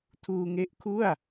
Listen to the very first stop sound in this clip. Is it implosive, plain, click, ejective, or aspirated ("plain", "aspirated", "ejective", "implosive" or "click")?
aspirated